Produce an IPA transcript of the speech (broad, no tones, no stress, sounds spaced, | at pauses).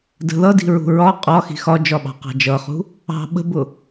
d ə̤ ð ʌ d i̤ ɹ ṳ ɹ ɒ qʼ ɒ x i̤ x ɒ d͡ʒ ɒ ɓ ɑ̤ q ɑ̤ d͡ʒ ʌ χ ṳ | ɑ̤ ɓ ə̤ b ʊ